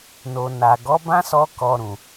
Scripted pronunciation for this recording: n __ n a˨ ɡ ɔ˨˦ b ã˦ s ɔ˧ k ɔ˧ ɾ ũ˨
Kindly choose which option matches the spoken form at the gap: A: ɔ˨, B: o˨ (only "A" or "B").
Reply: B